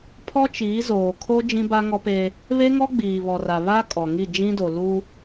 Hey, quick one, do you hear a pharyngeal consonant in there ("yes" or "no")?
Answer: no